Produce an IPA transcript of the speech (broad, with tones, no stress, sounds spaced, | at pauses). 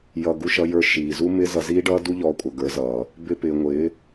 j ʌ˧ ɡ u˧ ʃ ʌ˧ j ə˞˧ ʃ iː˨ z u˦ m ɪː˦ z ʌ˧ z iː˦ ɖ ʌː˦ d u˦ ʎ ɔː˧ kʷʼ ʌ˨ ɡ ə˞˨˦ z ʌː˨ | b ɪ˧ p ɪː˨ ŋʷ ɪː˨˦